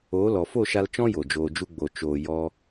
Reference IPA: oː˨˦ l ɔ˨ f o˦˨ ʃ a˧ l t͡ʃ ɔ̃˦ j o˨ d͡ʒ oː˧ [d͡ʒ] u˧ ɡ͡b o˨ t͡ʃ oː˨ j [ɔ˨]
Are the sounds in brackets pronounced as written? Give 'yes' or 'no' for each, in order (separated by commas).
yes, no